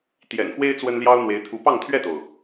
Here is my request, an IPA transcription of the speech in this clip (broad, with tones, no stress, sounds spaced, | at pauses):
t̪ j ɛ̰˨˩ n x w e˥ ɪ̯ t͡s w ə˥ n l j ɑ˥ ʊ̯ n̪ w e˧˥ ɪ̯ t̪ʰ u˧˥ p ɑ˥˧ ŋ t̪ʰ ɥ ɛ˥˩ t̪ o˩ ʊ̯